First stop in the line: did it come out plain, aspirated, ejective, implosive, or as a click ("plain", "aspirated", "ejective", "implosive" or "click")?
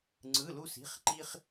click